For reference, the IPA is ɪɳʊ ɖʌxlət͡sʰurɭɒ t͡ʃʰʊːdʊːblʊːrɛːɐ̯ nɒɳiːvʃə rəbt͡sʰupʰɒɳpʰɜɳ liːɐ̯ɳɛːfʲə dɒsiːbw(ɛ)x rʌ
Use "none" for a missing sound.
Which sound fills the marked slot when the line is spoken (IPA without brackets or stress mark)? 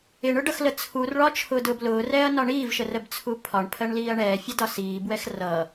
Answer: ɛ